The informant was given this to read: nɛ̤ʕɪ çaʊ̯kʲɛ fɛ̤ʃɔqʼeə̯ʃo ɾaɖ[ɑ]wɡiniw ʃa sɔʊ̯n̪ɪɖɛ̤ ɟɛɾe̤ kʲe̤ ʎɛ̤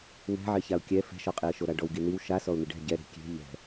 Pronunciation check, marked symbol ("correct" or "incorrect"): incorrect